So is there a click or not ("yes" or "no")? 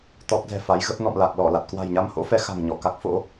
no